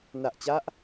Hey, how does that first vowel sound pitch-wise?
low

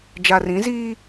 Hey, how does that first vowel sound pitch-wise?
low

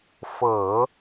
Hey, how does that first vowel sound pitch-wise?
low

